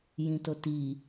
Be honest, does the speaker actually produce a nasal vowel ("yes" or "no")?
yes